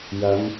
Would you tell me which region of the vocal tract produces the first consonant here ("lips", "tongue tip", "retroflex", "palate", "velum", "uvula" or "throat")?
palate